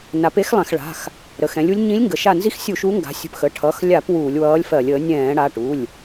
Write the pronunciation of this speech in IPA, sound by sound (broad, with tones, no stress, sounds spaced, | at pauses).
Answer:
n a˩˥ p e˧˥ x lˠ ɛ̃˧˩˧ x ɭ a̤˩˧˩ x | ɾ ə˩˧˩ x ɛ̃˩˥ lʲ u˧˥ lʲ ɲ ĩ˧˥ lʲ ŋ ɡ ə˩˥ ʃ a˧˩ n z i˧˥ x sʲ u˧˩˧ ʃ u˧˥ ŋ ɡ a̤˩˥ sʲ ə̤˧˩ p x ə˩˧˩ ʈʰ ʌ˩˧˩ x lʲ a˧˩˧ p w uː˧˩˧ lʲ w ʌː˧˥ lʲ f ɜ˧˩˧ lʲ əː˩˥ nʲ ɛ̃ː˧˩˧ ɽ a˩˧˩ ʈ u˩˧˩ lʲ